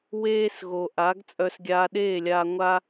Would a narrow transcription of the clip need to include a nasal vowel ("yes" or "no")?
no